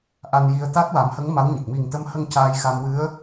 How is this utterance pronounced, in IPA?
ʔ a˧ n j i˧ ə̯ t̪ a˦˥ t̚ w a˨˩˦ m h ə˧˥ ŋ m a˧˥ w ɲ ə˨˩ k̚ m i˨˩ ŋ t̪ ə˧ m h ə˧ ŋ c aː˧ j x a˧ m w ɨ˧˥ ə̯

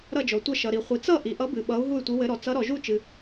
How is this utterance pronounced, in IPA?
ɾ ʌ˥˧ d͡ʒ ɔ˨ tʷ ʌ˥˧ ʃ ʌ˨ ɾ i˨ χʷ i˨ t͡s ʌ˥˧ ʔ i˨ ʔ ʌ˧˥ b ɨ˨ ɓ ʌ˧˥ u̯ ɦ u˥˧ y̯ tʷ ɨ˧˥ w ɘ˧˥ ɾ ɔ˨ t͡s ʌ˧˥ ɾ ɔ˨ ʒ u˥˧ t͡ʃ ɨ˨

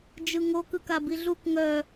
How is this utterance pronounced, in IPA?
d͡ʒ ɯ ŋ o k ɯ k a b i ɮ u k ŋ œ

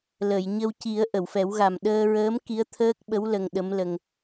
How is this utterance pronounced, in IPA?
l ə˨˩˨ j ɲ ə˧ w c i˨˩˦ ə̯ ʔ ə˨˩˨ w f ɛ˨˩˦ w ɣ a˨˩ m ɗ əː˧ ɹ əː˧˥ m k i˧˥ ə̯ t̪ʰ əː˦˥ k̚ ɓ ə˧˥ w l ə˧ ŋ ɗ ə˧˥ m l ə˧ ŋ

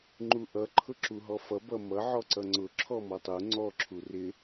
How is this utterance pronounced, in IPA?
ŋ͡ǃ u ʔ ʌ ǃʰ ʊ ǁ u ɦ ɔ f ʌ b ʌ m ʌ ʕ ɔ ǀ ʌ ŋ͡ǀ ʊ ǁʰ ɔ m ɔ tˤ u ŋ͡ǀ ɔ ǁʰ u r ɪ

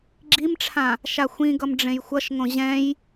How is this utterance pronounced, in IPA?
ɡ͡ǁ i m ʈ͡ʂʰ ã | ʃ a xʷ ĩ ɡ ʌ m ɖ͡ʐ ẽ j xʷ ʌ ʃ ŋ õ ʑ ɛ̃ j

